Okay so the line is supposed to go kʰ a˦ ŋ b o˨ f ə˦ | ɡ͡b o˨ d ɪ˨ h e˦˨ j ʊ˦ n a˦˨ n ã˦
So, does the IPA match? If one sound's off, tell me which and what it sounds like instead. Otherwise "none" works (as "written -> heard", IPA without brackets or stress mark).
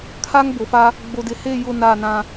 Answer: ə˦ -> a˦